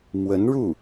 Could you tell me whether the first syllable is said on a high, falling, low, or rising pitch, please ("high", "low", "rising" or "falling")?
rising